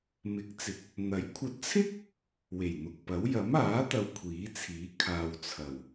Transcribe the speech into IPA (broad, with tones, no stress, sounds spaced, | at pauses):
m ɪ˨˥ k̚ t͡s ɪ˨˥ k̚ | n̪ ɐ˨˥ j kʷʰ ɐ˧ t̚ t͡sʰ ɪ˥ k̚ | w e˨˩ j n̪ ʊ˨ k̚ p ɐ˨˥ w j ɐ˨˥ m aː˨˥ t̪ ɐ˨ w kʷʰ iː˨˥ t͡sʰ iː˨˥ kʰ aː˨ w t͡sʰ ɐ˨˩ w